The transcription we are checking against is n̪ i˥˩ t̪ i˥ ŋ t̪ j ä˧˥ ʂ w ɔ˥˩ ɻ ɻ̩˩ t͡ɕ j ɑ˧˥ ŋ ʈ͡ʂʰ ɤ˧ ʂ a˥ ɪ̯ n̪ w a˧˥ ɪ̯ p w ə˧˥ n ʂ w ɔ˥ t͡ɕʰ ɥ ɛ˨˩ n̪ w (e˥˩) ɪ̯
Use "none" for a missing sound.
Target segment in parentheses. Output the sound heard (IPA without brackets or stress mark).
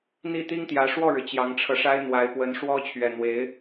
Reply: e˧˥